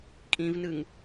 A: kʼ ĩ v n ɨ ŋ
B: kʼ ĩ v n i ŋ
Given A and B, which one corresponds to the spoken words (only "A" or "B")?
A